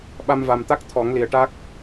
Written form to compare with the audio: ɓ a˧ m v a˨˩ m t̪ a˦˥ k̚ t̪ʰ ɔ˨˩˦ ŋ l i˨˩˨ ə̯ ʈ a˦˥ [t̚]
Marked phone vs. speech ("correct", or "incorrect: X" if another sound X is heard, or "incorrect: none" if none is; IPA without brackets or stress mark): incorrect: k̚